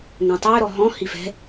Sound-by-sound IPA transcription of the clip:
ŋ õ tˤ ø ɾ ɔ ɦ ɔ̃ h i f ɛ̤

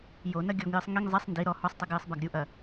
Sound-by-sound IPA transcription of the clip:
j o n ɐ ɡʲ ɔ ŋ j ɨ sˤ ŋ i ŋ zˤ ɛ sˤ n d i ɾ ɔ h ɔ sˤ tˤ i ɡ j ɨ sˤ b a ɡ ɾʲ u ʔ ɐ

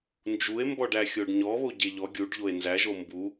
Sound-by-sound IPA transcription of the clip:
n d͡ʒ u e̯ m b ɔ ɖ æ xʲ o ɖ ɲ ɔ β o ɟ e ʎ ɔ ɡʲ u ɖ ʎ o e̯ n z æ ʒ o m b u

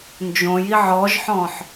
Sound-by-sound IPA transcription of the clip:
n d͡ʒ õ j i ʕ ɔ ʒ ħ ɔ̃ ħ

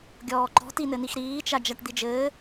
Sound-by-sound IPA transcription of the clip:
ɡʲ ɔː ǃ ɔ̤ t i n ɘ n i x ɾ iː t͡ʃ a d͡ʒ a ʈ d̪ i d͡ʒ ɘː

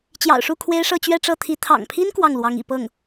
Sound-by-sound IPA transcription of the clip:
t͡ɕ j ɑ̰˨˩ ʊ̯ ʂ u˥˩ kʰ w e˥ ɪ̯ ʂ ɤ˥˧ t͡ɕ ɥ ɛ˥˧ ʈ͡ʂ ɤ˥˩ t̪ʰ i˧˥ t̪ʰ ɑ̰˨˩ ŋ pʰ i˥ n k w ɑ˥˩ ŋ l w ɑ˧˥ ŋ ḭ˨˩ p ɤ˥˩ ŋ

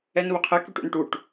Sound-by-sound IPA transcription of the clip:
ɛ n β ʊ qʰ ɛ k y ʈ ṵ n ʈ u ʈ

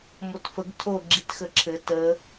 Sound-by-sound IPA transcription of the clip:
m o t f ə ɡ tʰ o ɡ͡ǁ i t x ə ǁʰ ɘ t ə

